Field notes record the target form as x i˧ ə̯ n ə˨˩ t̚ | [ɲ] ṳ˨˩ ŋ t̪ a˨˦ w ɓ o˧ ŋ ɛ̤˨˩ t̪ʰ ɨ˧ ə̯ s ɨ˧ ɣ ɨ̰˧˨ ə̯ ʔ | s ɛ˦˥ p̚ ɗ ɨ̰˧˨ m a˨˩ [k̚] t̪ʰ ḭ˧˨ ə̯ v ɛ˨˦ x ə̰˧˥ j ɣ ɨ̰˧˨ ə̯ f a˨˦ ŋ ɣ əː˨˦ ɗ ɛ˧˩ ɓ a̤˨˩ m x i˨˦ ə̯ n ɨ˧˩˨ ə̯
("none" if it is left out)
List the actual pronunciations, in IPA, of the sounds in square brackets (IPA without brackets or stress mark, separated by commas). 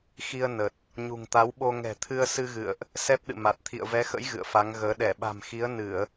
ɲ, t̚